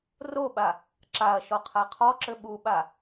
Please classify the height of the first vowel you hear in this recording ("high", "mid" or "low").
mid